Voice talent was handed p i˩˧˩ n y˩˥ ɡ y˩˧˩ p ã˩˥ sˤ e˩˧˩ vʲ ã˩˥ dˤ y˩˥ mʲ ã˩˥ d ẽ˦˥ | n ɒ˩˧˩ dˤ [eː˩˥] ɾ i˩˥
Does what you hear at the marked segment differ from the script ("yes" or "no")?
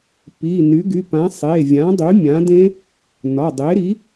yes